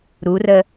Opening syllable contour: rising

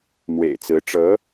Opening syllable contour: low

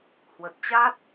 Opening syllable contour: low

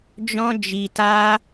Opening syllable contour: high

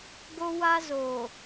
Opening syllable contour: high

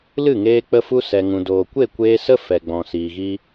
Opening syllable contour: falling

